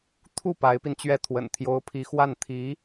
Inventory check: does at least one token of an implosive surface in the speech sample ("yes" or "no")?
no